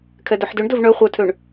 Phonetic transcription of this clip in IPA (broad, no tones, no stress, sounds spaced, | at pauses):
kʰ ɛ d œ ħ d ø ɳ d ɵ v ɳ œ χʷ œ tʰ ø ɳ